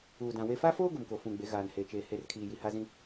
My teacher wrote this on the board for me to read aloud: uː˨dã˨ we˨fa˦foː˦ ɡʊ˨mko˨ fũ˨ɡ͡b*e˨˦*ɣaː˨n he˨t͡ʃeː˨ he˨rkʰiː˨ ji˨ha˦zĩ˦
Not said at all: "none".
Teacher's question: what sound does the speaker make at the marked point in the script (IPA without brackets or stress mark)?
e˨˦